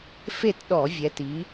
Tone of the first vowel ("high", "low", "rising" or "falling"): falling